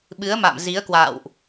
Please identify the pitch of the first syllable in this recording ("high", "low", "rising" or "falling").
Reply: rising